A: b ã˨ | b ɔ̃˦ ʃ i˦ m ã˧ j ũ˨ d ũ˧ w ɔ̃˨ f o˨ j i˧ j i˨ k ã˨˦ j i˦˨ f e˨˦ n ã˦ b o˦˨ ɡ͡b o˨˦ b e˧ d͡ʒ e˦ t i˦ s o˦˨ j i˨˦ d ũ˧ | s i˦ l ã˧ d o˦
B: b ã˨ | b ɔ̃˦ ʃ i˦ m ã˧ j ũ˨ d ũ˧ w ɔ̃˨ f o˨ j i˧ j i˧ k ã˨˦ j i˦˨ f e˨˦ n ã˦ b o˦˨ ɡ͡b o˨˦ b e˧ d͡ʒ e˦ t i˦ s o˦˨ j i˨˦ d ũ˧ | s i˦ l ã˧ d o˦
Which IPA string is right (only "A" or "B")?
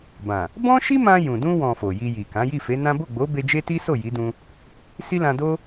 A